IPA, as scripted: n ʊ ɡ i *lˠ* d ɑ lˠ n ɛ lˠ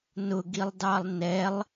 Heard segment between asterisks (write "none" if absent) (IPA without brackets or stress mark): lˠ